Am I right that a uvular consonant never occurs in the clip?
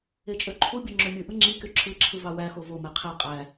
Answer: no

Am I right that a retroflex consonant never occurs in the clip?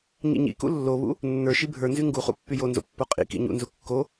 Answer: yes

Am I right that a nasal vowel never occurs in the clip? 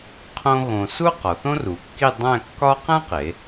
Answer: no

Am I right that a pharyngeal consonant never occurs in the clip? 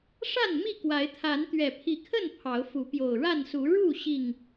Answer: yes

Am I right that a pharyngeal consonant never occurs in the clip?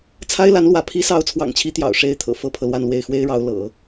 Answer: yes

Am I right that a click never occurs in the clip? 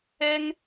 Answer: yes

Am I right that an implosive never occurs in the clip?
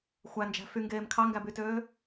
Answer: yes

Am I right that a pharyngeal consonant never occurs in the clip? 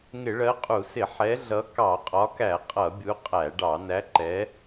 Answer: no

